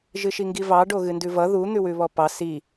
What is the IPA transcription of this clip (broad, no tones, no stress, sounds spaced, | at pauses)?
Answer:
ʒ ɨ ʃ i ŋ ɡ i v ɑ ɖ o ɣ ɨ n d ʉ v ʌ ð u n̪ ʉ w ʉ β ɔ p ɑ s i